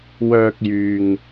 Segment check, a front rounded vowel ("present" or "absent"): present